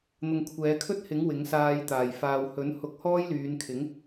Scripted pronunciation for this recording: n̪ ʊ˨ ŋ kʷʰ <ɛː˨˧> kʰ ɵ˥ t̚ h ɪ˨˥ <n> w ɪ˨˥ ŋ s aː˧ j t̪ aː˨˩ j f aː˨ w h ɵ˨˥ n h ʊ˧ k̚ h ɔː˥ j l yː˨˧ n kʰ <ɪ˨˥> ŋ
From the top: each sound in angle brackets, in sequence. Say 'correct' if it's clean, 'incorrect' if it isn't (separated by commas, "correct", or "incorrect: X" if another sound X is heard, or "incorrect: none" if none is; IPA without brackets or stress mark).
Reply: correct, incorrect: ŋ, correct